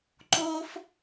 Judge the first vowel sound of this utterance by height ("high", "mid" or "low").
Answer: mid